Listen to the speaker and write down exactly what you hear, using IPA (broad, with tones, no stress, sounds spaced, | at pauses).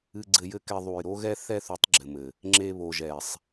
ɨ˧ ɡ͡ǀ ɘ˧ j ɘ˦ k ɛ˧ ðˤ u˨ j ɾ o˦ ɣ ɛ˦ θ ɛ˦ θ u˨˦ tˤ ɡ͡ǁ ɘ˨ m ɘ˨ | ŋ͡ǁ e˧ β o˨ ʒ ɛ˨ sˤ